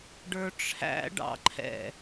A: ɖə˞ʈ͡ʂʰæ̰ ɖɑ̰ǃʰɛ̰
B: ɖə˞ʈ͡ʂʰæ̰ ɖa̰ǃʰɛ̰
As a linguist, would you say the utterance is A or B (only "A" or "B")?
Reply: A